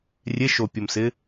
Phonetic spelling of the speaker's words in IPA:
rʲ e ʃ o pʲ o m s ɪ

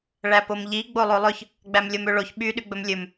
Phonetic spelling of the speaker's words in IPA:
ɭ æ p o m ʎ i ɡ͡b o lˠ o lˠ ɵ ç | ɡ͡b æ m lʲ o m ø ɭ o ç ɓ y ɗ y ɡ͡b ɵ m lʲ ɵ m

